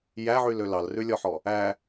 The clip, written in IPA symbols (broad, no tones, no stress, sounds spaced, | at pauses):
j æ ʕ y l ø l ɑ l r ʉ lʲ ɔ ħ ɔ | æ